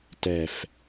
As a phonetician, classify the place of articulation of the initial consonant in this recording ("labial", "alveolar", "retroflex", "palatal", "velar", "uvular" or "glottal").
alveolar